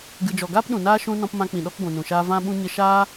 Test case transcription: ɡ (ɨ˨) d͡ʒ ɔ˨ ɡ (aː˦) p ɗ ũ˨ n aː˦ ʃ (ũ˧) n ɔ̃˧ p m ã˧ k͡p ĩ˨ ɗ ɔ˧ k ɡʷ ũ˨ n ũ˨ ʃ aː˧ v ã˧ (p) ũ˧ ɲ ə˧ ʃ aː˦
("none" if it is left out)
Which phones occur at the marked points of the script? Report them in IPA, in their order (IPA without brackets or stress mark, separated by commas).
ɨ˨, aː˦, ũ˧, ɓ